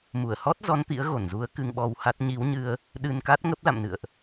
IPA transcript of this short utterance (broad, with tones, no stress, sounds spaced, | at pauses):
m u˧˩ ə̯ h ɔ˦˥ t̚ z ɔ˨˦ n t̪ ḭ˧˥ ə̯ ɣ o˧˩ n z u˨˦ ə̯ k ɨ˧ ŋ ɓ ɔ˧ w h a˦˥ t̚ ɲ i˨˦ w ɲ ɨ˧ ə̯ | ɗ ɨ˧ n k a˦˥ t̚ ŋ ə˦˥ p̚ l a̰˧˨ m n ɨ̰˧˨ ə̯ ʔ